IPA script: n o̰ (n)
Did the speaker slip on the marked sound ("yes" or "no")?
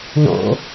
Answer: yes